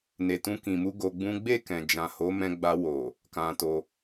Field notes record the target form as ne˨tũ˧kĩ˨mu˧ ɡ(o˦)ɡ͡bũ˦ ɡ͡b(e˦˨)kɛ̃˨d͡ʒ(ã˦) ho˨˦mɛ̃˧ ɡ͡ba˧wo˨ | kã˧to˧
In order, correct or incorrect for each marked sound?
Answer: incorrect: o˧, correct, incorrect: ã˨

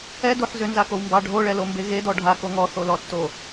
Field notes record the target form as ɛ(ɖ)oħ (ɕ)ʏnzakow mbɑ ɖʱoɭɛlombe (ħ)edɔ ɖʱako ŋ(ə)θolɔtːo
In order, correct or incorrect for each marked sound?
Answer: incorrect: d, incorrect: z, incorrect: ɣ, incorrect: ɔ

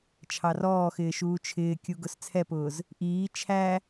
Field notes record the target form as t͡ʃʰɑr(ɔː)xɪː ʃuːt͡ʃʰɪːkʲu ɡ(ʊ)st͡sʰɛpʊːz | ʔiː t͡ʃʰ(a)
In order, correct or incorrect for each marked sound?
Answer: correct, correct, incorrect: æ

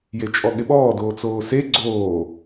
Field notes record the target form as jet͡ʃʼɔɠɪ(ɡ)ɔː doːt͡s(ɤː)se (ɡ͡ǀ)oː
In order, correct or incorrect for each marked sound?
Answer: incorrect: ɓ, incorrect: oː, correct

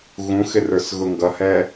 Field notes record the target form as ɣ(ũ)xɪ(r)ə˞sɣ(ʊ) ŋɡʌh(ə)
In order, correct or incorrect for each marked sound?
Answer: correct, correct, correct, incorrect: ɛ

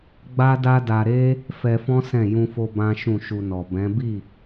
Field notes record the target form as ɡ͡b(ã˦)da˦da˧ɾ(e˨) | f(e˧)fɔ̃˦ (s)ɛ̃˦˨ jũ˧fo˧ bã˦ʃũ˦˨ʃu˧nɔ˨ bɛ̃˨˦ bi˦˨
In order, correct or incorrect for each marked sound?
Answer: incorrect: a˦, incorrect: e˦, incorrect: ɛ˧, correct

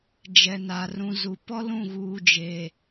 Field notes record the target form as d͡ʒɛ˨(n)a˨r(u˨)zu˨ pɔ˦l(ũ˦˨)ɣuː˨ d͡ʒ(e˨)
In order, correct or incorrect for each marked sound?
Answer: correct, incorrect: ũ˨, correct, correct

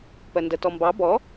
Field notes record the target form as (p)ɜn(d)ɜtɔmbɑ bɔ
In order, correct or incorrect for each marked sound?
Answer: correct, correct

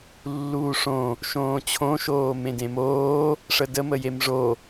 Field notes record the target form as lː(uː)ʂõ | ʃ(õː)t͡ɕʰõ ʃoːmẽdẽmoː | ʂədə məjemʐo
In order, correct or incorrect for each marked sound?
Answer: correct, correct

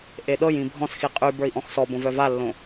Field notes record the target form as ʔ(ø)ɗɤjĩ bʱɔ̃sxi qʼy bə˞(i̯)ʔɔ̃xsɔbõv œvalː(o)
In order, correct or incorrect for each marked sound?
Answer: incorrect: e, correct, incorrect: õ

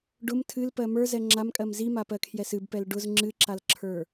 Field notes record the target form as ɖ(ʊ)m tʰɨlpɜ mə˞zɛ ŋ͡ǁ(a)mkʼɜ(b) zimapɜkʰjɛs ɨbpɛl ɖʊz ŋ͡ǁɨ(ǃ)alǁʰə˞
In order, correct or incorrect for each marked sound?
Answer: correct, correct, incorrect: m, incorrect: ǁ

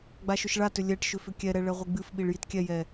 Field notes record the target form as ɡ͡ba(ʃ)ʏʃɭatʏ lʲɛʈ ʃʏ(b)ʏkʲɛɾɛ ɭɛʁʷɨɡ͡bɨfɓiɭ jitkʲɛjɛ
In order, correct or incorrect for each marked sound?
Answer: correct, incorrect: f

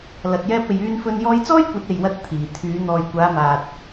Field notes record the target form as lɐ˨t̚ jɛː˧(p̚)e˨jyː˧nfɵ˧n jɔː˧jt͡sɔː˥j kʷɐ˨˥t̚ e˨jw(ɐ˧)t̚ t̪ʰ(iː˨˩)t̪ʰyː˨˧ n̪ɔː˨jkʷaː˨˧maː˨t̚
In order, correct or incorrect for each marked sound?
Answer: correct, correct, correct

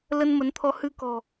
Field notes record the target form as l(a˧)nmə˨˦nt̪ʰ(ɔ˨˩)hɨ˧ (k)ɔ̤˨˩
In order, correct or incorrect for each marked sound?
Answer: incorrect: ə˧, incorrect: ɔ˧, correct

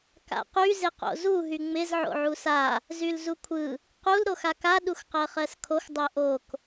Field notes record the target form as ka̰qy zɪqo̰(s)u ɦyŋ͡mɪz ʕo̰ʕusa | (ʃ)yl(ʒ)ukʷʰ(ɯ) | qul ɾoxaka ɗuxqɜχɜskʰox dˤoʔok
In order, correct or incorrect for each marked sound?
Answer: incorrect: z, incorrect: z, incorrect: z, correct

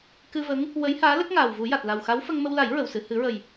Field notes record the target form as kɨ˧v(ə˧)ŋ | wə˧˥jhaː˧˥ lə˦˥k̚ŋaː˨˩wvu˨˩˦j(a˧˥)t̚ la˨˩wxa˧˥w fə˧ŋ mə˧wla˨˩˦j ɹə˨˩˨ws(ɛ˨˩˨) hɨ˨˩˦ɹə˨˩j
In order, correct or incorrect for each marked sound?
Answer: incorrect: ə˧˥, incorrect: a˨˩, incorrect: ɨ˨˩˨

